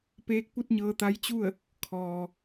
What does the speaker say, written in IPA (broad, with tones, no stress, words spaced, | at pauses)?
peː˧˥k̚pu˥˨t̚ɲɤː˧ t̪a˧˥jt͡ɕu˥˨ə̯ | kʰɔː˩